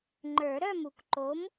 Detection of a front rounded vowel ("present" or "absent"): present